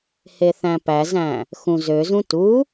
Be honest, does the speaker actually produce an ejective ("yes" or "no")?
no